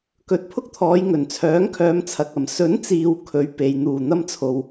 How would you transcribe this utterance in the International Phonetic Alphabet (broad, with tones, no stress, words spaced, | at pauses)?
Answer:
kɵ˨˥t̚pʰʊ˥k̚t̪ʰɔː˨˧j ŋɵ˨˩nt͡sʰœː˨˥ŋkʰœː˨˧mt͡sʰɐ˨k̚ ɐ˨˩m sɵ˨˥nt͡siː˨w kʰɵ˨˧ɥpe˨j n̪uː˨˩n̪ɐ˧mt͡sʰo˨w